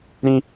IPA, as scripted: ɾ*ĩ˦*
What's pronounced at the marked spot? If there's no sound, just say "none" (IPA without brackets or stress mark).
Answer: ĩ˦